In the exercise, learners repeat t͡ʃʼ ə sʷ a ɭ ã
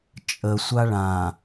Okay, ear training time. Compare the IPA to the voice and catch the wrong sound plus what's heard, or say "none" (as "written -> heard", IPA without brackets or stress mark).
none